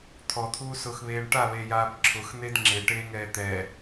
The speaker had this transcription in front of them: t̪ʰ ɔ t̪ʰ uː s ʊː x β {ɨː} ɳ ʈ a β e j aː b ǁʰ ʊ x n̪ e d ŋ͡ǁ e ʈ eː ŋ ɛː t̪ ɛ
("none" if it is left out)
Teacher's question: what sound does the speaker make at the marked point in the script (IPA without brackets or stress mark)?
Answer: eː